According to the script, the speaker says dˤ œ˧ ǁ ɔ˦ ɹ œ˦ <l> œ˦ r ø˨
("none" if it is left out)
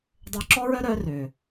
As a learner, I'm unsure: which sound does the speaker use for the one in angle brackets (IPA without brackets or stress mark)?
ɾ